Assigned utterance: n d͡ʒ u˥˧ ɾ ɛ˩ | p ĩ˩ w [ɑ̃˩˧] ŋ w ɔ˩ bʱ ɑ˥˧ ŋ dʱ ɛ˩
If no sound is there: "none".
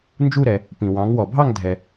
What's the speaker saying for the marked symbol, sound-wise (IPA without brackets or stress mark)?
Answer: ɑ̃˩˧